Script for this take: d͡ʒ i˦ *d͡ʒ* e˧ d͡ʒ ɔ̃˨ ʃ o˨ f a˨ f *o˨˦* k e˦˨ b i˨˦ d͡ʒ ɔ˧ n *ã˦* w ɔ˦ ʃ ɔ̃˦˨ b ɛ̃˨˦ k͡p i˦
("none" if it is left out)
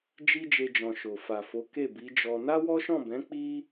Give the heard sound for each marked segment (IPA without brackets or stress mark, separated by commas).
d͡ʒ, o˨˦, a˦